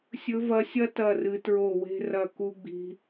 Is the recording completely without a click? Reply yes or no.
yes